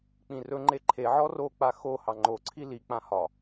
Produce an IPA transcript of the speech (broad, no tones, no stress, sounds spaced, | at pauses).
k͡p ĩ r ɵ ŋ͡ǃ e ǃʰ e ʕ ɔ r o k͡p a x o h ɑ ŋ͡ǃ o ǀʰ i l i k͡p ã h ɒ